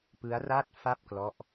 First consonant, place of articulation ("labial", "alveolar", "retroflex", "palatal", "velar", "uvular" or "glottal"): labial